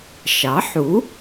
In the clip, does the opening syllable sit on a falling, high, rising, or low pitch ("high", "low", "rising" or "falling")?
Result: rising